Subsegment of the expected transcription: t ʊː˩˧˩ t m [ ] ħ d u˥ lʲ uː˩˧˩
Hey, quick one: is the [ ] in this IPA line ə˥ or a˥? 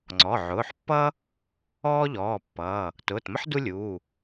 ə˥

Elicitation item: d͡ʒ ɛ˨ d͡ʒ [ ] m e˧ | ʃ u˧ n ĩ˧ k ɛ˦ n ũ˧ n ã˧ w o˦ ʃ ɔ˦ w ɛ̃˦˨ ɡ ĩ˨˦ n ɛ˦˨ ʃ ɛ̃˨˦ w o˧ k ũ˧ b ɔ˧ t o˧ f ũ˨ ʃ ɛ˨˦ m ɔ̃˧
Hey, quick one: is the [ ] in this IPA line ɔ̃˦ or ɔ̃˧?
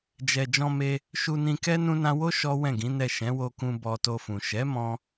ɔ̃˧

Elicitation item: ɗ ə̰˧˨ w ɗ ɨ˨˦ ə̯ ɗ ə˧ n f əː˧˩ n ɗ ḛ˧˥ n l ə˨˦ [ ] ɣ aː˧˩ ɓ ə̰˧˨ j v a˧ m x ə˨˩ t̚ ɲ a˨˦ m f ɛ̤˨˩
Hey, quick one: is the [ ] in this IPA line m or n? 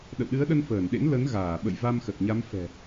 n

